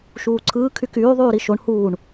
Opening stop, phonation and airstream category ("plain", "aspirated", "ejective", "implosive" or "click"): click